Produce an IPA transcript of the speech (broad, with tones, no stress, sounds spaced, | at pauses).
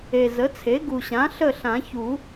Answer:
e˨˩ z ə˩˥ t͡sʰ e˩˥ ɡ u˨˩ ɕ ã˩˥ ɬ ə˥˨ ɬ ã˨˩˦ ç u˨˩˦